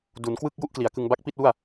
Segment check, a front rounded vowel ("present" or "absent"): absent